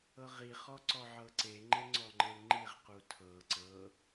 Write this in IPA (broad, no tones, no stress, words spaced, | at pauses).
ɤʁiχɔ ǀɔʕɤǀeŋ͡ǃe ŋ͡ǀɔŋ͡ǃel ŋ͡ǃiʁqu tʰɤ ǀɤ